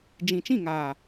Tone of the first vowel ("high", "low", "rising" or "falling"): low